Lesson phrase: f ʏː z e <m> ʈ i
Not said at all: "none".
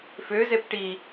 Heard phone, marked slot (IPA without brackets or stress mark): p